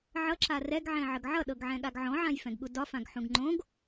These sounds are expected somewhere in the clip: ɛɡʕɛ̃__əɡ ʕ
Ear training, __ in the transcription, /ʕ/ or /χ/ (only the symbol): ʕ